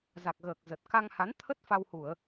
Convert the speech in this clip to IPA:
za˨˩k̚ɣəː˨˩k̚ zə˨˩t̚ ka˧ŋha˨˦n t̪ʰə˦˥t̚ fa˧whu˧˩˨ə̯

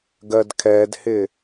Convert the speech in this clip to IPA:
ɡɜdkʰɛdhɪ

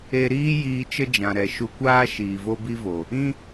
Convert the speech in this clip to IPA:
e˧ɾiː˦ jiː˧t͡ʃə˦ d͡ʒã˨ɾɛ˨ʃu˧kʷaː˦ ʃiː˨vo˦bi˦vo˨ | ĩ˦

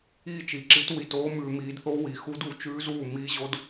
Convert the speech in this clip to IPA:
iː˥˩t͡ʃi˨˩˦ǁi˨˥t wi˧toː˦˥ mʉː˧miː˨˥dθo˦˥ wi˨˩˦xu˦˥du˨˩˦ t͡ʃʉː˦˥zuː˥˩ miː˦˥ʑo˦˥d

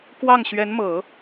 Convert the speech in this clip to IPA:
kwɑ˥˩ŋɕɥɛ˧˥nmɤ˨˩˦

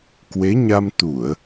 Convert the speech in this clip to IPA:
kwe˨˦ɲa˧m t̪u˧˩˨ə̯

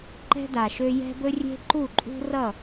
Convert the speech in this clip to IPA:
ǃɛ̤˦da˨ʃø˦ jɛ̤˦bɵ˦ rʲe̤˦ǃu˦˨ǃʼṳ˦rʌ˦˨

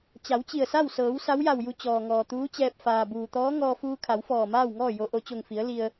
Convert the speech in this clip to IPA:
t͡ɕa˩˧wt͡ɕi˧˩ə̯sa˥˨w sɤː˩˧w sa˧˥wja˧˩wju˧ t͡ɕɔː˩ŋɔː˩t̪uː˧˥t͡ɕɛː˧p̚ faː˩buː˩t̪ɔː˧˥ ŋɔː˧fuː˧kʰa˩˧w fɔː˧˩maː˥˨wŋɔː˥˨ jo˧˥ ʔo˩t͡ɕo˧˩ŋfi˩˧ə̯ li˧ə̯

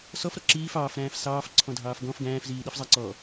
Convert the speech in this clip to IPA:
sɔfɾɔ ǁiːf ɑːfɾæ̃ːf sɑːfǀʰɔ̃dʱɑːf ɡɔ̃f ɡæ̃ːfziːɗifzˤæ ǀɔ

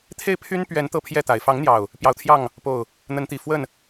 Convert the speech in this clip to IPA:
t̪ʰe˥˨ɪ̯ pʰy˦npɥɛ˨˦n t̪ɤ˥˨pʰjɛ˥˨t̪a˨˩ɪ̯ fɑ˨˦ŋn̪jɑ˨˩ʊ̯ | pjɑ˨˦ʊ̯t̪ʰjɑ˥˨ŋ | po˥˨ʊ̯ | n̪ə˨˦nt̪i˨˩ fwə˥˨n

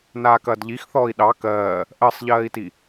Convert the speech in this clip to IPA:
naːkɐːdʎixθɔːi̯ ɗɑ kɜː | ʔɜsˤʎɜːi̯ti

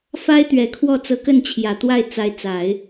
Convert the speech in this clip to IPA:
fa˥ɪ̯t̪ɥɛ˨˩kʰwɔ˥˩ t͡sɤ˧˥kə˥˩nt͡ɕʰjä˨˩t̪wa˥˩ɪ̯ t͡sa˧˥ɪ̯t͡sa˨˩˦ɪ̯

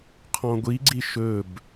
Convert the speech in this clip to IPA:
qʰɔ̃ɡʷiɡ͡ǀi ʃɵb

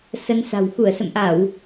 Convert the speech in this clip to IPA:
sə˧nsa̤˨˩w xu˧˩ə̯sə̰˧˨mʔa˧˩˨w

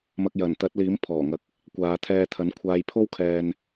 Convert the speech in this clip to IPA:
mɐ˨k̚jɐ˨˩n t̪ɐ˨˥t̚liː˨˥m pʰɔː˨˩ŋɐ˨˥k̚ | kʷaː˨˧t̪ʰɛː˧t̪ʰɐ˨˥n kʷʰaː˧j pʰo˥wkʰɛː˧n

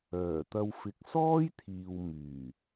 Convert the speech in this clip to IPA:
œː˨˩t̪ɐ˧w fɪ˨˥k̚ sɔː˥jt̪ʰiː˨w myː˨˩

